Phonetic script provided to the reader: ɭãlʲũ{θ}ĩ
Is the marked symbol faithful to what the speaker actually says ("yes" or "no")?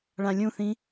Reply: yes